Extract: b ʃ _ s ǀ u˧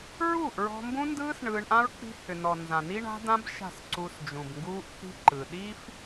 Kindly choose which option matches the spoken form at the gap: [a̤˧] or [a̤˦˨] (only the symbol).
a̤˦˨